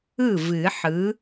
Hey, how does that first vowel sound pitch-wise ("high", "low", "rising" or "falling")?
falling